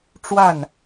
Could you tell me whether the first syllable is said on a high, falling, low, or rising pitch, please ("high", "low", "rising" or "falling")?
falling